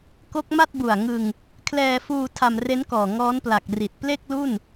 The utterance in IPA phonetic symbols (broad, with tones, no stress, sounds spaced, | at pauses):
k o˦˥ k̚ m a˥˩ t̚ b u˨˩ a̯ ŋ ɯ˧ ŋ | kʰ l ɛː˧ f uː˧ tʰ a˧ m r e˦˥ n k ɔː˨˩ ŋ ɔː˦˥ n p l a˨˩ k̚ r i˨˩ t̚ p l e˥˩ k̚ l u˥˩ n